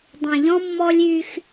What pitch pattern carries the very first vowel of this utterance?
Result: low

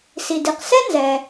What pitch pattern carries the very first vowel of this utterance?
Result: low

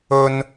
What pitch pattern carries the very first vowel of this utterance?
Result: high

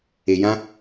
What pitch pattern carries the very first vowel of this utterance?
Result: low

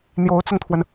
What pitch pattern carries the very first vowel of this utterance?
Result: rising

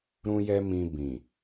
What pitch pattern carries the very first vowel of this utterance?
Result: high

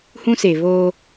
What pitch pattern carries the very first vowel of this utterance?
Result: high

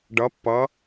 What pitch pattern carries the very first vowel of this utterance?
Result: rising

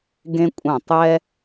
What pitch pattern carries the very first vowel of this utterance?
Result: high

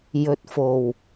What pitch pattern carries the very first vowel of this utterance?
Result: low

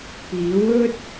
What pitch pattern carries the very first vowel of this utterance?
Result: rising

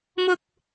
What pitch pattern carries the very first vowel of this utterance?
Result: high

